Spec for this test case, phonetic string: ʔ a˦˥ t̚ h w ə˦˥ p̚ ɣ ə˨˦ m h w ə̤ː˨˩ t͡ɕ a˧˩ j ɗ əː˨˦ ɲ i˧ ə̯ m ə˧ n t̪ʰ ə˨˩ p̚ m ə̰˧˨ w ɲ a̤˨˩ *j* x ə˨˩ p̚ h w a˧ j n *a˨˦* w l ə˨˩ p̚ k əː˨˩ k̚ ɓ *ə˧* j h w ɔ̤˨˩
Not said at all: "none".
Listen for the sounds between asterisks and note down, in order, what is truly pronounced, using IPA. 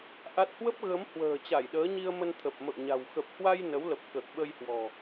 w, ə˨˦, ə˧

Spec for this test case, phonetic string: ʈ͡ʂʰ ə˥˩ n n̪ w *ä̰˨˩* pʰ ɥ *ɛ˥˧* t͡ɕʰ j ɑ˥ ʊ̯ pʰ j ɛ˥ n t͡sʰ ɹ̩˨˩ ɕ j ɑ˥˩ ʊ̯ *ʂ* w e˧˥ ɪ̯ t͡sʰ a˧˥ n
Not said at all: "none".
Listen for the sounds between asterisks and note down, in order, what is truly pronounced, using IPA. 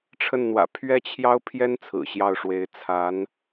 ä̰˨˩, ɛ˥, ʂ

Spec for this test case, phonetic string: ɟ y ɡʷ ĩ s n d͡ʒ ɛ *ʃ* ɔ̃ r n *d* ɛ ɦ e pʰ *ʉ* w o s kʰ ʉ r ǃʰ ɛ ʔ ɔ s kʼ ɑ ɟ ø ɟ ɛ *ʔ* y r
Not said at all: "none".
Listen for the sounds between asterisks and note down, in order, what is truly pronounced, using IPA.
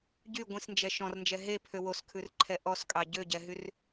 ʃ, d͡ʒ, ø, ɦ

